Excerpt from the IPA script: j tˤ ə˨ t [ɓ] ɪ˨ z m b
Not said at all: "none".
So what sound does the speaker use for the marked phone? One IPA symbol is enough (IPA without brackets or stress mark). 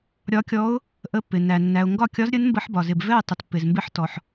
pː